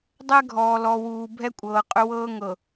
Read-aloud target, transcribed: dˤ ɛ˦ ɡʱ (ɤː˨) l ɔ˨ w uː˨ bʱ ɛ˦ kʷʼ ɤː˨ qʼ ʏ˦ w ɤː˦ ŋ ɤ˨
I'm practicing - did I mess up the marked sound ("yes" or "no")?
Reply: yes